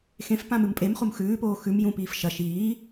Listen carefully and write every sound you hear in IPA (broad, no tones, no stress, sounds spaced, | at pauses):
x ẽ f p ã m ɨ m pʼ e m χ u m x ʉː p oː x ʉ m j ũ p iː f ʃ ɐ ʃ iː